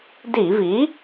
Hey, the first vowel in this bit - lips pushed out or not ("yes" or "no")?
no